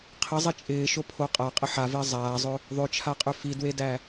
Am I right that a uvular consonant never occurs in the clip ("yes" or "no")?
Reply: no